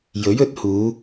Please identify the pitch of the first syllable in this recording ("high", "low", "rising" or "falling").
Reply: rising